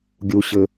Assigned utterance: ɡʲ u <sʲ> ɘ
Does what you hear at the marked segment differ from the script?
yes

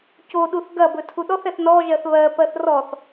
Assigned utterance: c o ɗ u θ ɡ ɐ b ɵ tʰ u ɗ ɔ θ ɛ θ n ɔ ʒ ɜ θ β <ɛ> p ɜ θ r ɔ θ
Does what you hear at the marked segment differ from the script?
yes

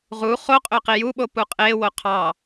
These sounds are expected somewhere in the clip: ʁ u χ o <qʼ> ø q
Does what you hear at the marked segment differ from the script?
no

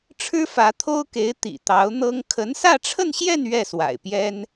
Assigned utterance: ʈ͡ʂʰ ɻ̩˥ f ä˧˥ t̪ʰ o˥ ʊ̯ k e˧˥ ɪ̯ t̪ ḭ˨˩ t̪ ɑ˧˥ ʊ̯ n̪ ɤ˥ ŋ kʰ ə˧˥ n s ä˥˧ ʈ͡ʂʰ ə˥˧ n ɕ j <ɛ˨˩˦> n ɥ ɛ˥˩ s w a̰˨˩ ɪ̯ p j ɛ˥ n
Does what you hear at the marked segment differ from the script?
yes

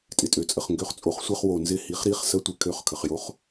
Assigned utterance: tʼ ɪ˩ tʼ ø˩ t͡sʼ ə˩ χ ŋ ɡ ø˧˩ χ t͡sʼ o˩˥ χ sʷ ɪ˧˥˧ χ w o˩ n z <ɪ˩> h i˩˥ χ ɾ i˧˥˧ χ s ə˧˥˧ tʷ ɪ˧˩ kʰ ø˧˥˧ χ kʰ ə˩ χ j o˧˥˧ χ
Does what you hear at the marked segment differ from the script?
yes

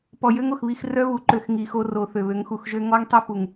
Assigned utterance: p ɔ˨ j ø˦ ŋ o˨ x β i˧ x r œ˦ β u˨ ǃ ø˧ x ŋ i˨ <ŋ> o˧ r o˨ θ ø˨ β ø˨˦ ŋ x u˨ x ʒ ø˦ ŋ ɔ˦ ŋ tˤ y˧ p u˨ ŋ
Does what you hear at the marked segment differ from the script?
yes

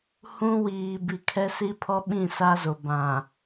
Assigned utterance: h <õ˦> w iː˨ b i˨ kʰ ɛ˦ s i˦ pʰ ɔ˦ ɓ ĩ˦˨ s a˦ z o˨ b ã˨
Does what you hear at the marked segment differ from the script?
yes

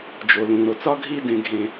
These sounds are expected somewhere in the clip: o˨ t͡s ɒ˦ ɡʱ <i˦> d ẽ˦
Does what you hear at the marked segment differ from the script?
no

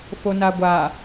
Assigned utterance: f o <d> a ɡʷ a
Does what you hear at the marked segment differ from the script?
yes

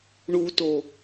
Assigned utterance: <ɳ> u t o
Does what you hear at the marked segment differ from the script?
no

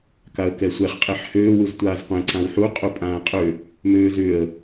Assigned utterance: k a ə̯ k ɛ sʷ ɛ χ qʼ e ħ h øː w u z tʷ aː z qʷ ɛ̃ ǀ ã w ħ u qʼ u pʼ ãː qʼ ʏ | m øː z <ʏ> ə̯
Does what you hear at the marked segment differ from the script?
no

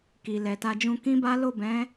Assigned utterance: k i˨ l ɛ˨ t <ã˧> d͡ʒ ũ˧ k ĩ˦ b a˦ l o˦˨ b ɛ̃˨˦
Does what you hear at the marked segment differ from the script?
yes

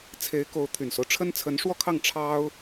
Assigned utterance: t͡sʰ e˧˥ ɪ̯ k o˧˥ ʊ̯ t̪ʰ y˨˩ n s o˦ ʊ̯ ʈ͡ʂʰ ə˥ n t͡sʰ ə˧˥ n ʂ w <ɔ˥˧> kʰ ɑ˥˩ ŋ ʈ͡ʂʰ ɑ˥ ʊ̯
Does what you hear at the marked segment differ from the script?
no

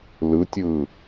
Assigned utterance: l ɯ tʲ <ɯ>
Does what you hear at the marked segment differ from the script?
yes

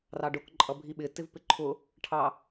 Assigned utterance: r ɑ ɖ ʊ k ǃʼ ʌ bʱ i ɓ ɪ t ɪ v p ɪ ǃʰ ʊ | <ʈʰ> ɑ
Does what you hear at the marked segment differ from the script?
no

